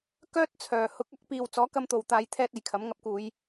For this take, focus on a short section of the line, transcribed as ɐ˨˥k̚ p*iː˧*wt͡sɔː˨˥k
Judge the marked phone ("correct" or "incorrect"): incorrect